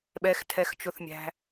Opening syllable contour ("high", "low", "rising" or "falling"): low